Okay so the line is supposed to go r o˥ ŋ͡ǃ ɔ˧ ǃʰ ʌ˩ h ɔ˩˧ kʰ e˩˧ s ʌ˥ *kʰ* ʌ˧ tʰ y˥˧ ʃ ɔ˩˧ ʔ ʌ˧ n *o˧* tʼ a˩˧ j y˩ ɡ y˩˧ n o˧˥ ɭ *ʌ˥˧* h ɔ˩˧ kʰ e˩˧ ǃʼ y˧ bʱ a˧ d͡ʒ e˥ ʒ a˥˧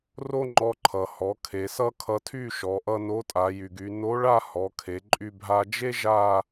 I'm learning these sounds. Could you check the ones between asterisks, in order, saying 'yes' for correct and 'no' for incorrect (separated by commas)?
yes, no, no